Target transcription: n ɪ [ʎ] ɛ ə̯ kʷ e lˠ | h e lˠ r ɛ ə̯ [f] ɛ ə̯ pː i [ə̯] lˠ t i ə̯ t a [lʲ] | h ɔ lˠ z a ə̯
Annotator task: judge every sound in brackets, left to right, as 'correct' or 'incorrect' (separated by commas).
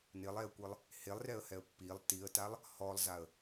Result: incorrect, incorrect, incorrect, incorrect